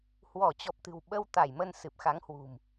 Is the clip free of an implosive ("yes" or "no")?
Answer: no